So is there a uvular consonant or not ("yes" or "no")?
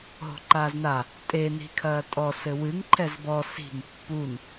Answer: no